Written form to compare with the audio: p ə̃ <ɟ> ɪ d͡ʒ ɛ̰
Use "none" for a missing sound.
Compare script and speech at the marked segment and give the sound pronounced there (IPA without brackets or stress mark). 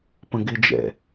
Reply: ɡ